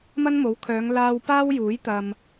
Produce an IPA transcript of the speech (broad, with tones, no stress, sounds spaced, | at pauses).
m ɐ˥ n m o˨˥ w kʰ œː˨˧ ŋ l aː˥ w p aː˥ w j uː˨˥ j t̪ ɐ˨ m